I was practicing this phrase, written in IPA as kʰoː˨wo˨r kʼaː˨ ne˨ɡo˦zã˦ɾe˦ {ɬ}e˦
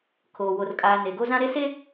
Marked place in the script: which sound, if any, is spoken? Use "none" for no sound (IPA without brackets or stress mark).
s